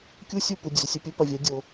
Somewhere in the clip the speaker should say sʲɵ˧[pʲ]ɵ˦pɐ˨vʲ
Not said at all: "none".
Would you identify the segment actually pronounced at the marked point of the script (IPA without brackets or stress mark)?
pʲ